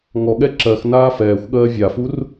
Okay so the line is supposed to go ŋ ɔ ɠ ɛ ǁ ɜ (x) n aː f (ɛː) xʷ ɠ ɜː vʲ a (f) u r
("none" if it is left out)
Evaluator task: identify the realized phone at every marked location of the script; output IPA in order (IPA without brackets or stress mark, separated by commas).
x, ɛː, f